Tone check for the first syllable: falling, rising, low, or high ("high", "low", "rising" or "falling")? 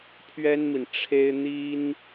high